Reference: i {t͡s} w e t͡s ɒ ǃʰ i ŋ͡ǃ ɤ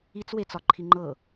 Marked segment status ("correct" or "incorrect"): correct